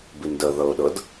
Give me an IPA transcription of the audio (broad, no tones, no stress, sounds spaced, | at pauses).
b i n d ə ð ɤ ʊ̯ ɗ ɤ d